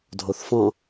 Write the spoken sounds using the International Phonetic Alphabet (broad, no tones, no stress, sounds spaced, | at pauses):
dʱ o θ f ɔ̃